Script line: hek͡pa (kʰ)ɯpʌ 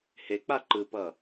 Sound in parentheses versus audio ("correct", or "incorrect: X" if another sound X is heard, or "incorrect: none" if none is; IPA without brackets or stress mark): incorrect: ǃ